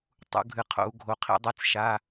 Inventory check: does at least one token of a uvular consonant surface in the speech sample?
yes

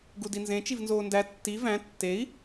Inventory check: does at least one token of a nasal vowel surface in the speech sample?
yes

